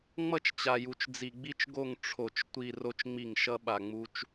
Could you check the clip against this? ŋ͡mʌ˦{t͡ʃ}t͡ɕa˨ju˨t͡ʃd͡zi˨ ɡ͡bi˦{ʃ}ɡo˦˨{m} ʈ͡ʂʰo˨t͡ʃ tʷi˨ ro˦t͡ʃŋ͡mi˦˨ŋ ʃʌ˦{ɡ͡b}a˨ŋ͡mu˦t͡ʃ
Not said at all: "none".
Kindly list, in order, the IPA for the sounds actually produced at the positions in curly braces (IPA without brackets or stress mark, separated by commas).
t͡ʃ, t͡ʃ, ŋ, ɓ